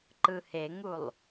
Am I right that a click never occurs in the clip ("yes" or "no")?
no